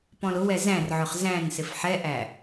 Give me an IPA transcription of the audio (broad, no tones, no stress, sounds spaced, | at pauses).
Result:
p ɔ̃ l ʊ w ɛ z æ̃ r ʕ ʊ χ z æ̃ n s ɪ f ħ ɛ ʔ æ